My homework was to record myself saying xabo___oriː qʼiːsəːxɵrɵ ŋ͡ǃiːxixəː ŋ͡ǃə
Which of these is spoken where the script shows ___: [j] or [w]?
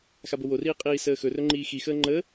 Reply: w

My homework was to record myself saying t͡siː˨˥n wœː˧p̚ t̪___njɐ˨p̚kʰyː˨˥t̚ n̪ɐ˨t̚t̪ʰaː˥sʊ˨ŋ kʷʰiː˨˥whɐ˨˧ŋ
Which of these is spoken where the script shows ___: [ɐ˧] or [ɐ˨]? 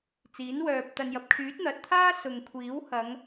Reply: ɐ˨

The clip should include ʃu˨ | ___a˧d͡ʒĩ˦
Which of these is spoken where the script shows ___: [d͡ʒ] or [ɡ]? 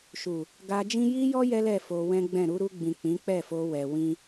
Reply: ɡ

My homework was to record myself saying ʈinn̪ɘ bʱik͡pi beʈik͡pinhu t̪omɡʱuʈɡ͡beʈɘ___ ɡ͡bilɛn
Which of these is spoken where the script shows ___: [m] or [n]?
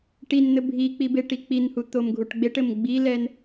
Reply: m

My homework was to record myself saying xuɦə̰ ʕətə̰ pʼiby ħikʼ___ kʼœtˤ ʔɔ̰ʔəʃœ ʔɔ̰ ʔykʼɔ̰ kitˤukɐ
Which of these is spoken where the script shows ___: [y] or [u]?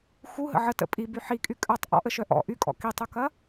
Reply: y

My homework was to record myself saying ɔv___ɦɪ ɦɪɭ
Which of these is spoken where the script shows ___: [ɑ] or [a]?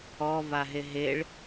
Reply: a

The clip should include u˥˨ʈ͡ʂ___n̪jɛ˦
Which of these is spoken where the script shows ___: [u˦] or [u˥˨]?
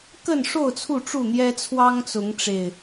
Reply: u˥˨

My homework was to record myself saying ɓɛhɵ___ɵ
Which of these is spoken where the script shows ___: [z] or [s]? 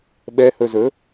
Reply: z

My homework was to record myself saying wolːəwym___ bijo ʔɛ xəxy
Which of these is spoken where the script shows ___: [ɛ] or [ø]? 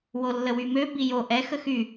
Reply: ø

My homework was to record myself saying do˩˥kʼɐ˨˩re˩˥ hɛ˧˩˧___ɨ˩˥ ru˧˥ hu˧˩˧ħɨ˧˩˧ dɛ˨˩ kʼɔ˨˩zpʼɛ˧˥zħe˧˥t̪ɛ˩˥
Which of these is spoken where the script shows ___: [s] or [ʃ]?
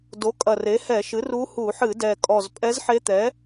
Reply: ʃ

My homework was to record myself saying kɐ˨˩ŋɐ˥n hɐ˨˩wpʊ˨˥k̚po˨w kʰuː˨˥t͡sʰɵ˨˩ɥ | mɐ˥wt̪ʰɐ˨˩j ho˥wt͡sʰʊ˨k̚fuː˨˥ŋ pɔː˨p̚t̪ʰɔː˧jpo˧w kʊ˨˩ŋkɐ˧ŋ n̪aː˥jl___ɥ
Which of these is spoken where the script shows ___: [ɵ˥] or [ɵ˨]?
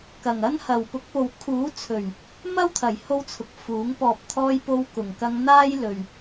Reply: ɵ˨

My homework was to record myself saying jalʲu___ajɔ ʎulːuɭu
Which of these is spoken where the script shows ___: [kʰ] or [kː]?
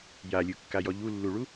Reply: kː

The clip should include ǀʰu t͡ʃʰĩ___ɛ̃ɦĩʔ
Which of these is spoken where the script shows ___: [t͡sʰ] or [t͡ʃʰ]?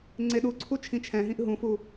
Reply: t͡ʃʰ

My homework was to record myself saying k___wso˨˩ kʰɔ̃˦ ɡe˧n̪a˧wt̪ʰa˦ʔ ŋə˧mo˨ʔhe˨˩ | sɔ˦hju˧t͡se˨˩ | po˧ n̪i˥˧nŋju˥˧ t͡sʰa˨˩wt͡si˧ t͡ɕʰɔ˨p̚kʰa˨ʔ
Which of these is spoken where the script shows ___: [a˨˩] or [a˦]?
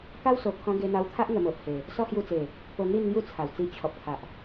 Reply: a˦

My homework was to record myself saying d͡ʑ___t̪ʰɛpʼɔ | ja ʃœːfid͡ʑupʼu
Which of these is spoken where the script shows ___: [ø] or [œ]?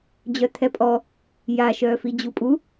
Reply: œ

